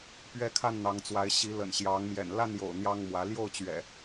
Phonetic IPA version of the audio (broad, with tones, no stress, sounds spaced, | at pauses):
p ɥ ɛ˦ kʰ a˥˨ n n̪ ɑ˨˦ ŋ t͡s w a˨˦ ɪ̯ ɕ i˨˦ l ə̰˨˩ n ɕ j ɑ˨˦ ŋ m j ɛ̰˨˩ n l a˥˨ n j o̰˨˩ ʊ̯ n̪ j ɑ˦ ŋ m w ä˨˦ l j o˥˨ ʊ̯ t͡ɕ ɥ ɛ̰˨˩